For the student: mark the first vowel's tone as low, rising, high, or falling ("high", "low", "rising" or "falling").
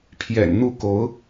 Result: low